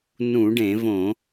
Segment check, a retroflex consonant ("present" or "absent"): present